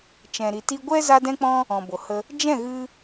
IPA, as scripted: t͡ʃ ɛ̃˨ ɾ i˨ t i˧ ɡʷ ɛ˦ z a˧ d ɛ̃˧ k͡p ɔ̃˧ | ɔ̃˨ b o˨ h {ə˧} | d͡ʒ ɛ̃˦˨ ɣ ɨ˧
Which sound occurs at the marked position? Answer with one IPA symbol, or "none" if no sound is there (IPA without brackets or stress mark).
ə˧